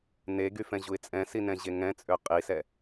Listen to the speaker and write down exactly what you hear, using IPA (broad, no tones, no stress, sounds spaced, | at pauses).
n e ɡ y f ɛ̃ ʑ u ɪ̯ t͡sʼ ɛ̃ s i n ɛ̃ ʑ e ŋ ɛ̃ t͡sʼ ø qʼ i s ɛ